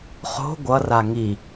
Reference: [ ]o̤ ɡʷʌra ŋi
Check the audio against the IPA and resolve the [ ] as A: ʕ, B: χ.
B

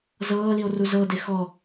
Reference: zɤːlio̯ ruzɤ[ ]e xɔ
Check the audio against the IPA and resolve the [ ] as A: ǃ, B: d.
B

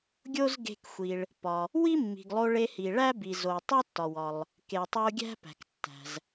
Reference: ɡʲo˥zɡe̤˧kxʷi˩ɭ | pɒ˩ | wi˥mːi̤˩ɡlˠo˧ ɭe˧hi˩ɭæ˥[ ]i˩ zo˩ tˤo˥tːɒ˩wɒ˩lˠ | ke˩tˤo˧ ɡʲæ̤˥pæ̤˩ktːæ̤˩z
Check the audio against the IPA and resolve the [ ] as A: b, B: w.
A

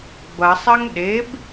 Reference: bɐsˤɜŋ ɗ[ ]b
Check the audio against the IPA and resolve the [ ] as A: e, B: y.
A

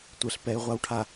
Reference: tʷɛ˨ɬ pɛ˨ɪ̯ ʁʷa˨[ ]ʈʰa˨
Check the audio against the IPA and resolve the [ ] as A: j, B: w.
B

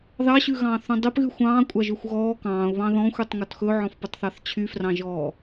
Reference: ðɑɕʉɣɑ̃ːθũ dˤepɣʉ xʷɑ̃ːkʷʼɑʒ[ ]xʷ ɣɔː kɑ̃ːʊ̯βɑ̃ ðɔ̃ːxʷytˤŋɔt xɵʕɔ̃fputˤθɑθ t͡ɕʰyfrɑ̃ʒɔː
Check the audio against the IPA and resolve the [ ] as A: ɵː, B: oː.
A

